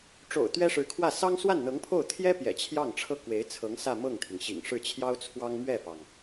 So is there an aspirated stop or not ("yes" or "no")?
yes